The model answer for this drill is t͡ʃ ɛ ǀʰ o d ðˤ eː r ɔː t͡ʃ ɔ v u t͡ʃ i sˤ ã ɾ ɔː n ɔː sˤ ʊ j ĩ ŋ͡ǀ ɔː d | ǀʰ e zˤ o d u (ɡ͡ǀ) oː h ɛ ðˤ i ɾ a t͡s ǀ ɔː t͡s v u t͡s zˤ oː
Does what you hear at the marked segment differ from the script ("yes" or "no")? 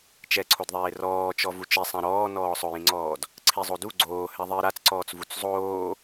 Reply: no